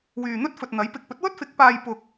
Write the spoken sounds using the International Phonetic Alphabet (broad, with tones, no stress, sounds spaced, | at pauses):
w yː˨ n̪ ɵ˥ t̚ f ɵ˨ t̚ n̪ ɐ˨˥ j p ɪ˨ k̚ p ɵ˨˥ t̚ w ɵ˥ t̚ f ɪ˨˥ k̚ p aː˧ j p ʊ˨ k̚